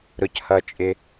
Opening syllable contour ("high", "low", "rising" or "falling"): low